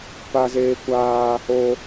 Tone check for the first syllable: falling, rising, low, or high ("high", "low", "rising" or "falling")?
high